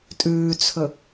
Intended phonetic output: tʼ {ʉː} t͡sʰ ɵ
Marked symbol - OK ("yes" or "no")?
yes